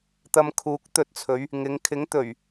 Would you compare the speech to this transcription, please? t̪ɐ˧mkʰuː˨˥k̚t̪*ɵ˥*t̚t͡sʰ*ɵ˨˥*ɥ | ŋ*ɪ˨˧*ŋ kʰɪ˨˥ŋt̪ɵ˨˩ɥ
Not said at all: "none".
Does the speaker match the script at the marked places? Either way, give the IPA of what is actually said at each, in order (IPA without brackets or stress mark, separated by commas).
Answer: ɵ˧, ɵ˨˧, ɪ˨˧